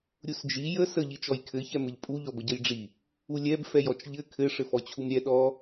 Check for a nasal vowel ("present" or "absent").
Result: absent